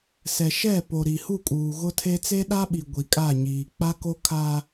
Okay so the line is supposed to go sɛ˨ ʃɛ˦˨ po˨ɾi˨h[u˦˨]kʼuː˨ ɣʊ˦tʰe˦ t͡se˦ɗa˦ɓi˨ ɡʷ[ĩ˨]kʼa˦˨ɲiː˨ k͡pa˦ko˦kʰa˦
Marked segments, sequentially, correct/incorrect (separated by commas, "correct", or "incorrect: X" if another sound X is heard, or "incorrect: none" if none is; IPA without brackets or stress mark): correct, incorrect: i˨